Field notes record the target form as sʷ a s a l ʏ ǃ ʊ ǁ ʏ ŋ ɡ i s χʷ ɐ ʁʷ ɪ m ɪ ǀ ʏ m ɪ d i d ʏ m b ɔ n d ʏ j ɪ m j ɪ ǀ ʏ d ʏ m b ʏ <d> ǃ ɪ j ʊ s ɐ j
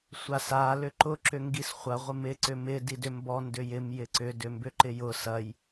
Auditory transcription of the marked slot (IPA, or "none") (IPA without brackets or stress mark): none